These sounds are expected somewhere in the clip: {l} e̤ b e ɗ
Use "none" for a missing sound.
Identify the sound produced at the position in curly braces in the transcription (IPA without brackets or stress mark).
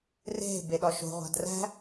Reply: r